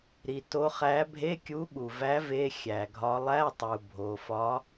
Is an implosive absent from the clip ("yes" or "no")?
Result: no